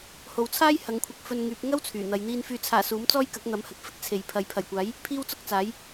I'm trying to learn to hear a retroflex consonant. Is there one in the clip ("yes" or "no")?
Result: no